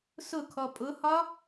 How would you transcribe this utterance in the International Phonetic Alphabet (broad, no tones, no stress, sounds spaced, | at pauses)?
s ʊ kʰ ɔ pʼ ʊ h ɒ